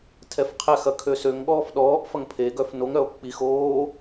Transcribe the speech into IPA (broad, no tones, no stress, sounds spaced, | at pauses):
tʰ ɛ f qʰ ɛ x ɐ kʰ ø s ø ŋ ɠ ɔː f ɗ ɔː ʔ f ɐ ŋ pʰ e ɡ œ f n o ŋ ɾ œ o̯ k͡p i x oː